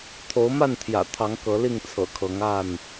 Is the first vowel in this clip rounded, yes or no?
yes